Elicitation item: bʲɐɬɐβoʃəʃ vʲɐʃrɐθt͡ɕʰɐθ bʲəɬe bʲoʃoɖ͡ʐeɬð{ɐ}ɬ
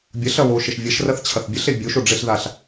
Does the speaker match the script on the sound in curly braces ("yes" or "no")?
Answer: no